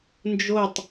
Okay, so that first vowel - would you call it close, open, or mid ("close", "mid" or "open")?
mid